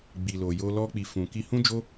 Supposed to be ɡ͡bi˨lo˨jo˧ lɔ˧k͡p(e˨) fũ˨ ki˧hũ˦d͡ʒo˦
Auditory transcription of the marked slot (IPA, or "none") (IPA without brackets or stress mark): i˨